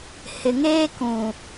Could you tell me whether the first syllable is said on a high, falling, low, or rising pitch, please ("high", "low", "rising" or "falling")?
low